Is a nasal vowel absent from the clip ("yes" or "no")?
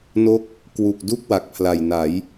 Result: yes